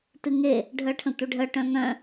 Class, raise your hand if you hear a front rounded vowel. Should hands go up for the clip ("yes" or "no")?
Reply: yes